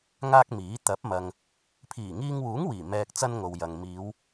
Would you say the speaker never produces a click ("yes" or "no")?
yes